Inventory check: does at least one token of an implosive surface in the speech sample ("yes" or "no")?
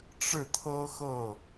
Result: no